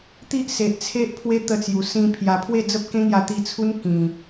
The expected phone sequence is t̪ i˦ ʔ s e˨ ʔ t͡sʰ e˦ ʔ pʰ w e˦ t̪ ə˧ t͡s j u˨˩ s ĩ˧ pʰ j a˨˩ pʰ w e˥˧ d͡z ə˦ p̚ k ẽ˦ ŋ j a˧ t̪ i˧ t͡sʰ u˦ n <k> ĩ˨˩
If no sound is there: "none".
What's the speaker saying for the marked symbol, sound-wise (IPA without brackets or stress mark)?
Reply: k